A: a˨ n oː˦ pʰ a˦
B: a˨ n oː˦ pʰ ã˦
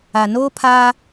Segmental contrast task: A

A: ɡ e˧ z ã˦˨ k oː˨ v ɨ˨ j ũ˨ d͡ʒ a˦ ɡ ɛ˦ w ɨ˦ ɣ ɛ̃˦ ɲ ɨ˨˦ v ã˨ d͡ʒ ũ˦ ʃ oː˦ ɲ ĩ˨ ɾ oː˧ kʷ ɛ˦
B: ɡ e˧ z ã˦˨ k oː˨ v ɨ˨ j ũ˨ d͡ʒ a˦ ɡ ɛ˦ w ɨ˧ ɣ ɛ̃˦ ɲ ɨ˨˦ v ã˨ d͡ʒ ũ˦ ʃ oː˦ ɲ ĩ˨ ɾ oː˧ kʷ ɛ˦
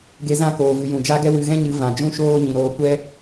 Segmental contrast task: B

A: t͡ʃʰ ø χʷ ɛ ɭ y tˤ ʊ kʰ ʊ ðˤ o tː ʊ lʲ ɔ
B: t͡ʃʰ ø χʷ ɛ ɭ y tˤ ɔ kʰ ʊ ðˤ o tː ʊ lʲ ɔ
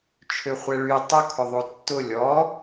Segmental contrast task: A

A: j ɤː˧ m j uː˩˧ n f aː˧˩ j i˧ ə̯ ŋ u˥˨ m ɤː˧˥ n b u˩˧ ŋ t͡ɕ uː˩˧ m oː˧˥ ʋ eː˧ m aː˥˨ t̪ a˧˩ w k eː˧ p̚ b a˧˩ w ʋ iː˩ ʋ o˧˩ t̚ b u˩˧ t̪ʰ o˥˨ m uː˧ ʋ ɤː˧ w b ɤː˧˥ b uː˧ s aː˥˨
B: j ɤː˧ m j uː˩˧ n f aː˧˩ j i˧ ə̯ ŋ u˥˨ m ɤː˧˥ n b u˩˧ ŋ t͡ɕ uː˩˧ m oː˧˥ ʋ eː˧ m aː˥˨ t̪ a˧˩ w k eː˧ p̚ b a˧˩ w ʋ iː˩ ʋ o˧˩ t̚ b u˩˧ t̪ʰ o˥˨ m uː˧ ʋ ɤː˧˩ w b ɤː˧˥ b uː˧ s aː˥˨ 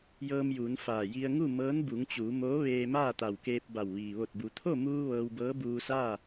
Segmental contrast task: A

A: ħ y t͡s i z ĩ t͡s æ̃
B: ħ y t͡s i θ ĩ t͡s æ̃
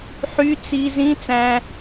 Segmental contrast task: A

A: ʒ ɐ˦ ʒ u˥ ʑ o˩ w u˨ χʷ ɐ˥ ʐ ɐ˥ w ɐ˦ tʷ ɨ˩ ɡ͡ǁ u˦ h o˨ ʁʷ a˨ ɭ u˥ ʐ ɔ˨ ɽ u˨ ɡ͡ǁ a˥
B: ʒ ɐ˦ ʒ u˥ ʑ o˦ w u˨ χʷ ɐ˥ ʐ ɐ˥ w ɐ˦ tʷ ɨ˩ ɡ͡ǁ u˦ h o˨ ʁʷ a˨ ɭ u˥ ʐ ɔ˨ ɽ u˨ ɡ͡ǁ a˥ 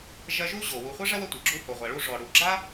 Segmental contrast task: A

